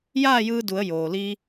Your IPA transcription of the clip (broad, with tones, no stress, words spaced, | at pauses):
jaː˥˨jɯː˧du˩˧ə̯ joː˩li˧